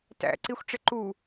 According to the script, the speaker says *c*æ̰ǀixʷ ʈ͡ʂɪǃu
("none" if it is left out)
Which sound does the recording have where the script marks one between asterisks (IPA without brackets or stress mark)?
t